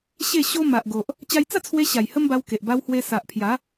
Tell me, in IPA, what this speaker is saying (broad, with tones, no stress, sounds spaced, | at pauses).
ɕ e˥˧ ɕ o˦ m a˨ ʔ ɡ o˨ ʔ | t͡ɕ a˧ j t͡s a˥˧ t͡sʰ w e˧ ɕ a˨˩ j h ə˦ m b a˧ w k e˨ ʔ b a˧ w h w e˧ s a˨ ʔ pʰ j a˨˦